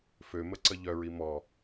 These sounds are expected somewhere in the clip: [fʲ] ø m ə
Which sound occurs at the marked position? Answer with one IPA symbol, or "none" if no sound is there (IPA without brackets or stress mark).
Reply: f